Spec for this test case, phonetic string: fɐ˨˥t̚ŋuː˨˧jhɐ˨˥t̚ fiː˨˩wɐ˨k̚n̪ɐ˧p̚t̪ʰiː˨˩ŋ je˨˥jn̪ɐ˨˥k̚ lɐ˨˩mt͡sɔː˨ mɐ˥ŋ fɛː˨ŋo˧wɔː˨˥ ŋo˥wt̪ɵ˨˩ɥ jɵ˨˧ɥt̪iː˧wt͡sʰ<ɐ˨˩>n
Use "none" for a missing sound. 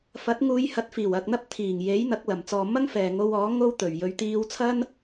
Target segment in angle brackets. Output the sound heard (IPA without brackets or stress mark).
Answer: ɐ˥